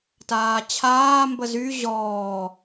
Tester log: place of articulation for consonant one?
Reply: alveolar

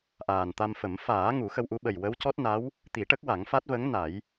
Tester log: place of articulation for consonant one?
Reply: glottal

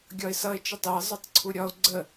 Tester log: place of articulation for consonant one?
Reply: velar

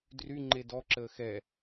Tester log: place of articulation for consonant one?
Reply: alveolar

